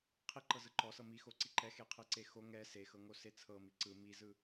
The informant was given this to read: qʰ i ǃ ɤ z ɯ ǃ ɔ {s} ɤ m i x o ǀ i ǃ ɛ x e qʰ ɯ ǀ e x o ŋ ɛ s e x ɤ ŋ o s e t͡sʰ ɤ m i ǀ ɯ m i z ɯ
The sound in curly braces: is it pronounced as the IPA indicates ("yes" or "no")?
yes